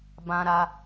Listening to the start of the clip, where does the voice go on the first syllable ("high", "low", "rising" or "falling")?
high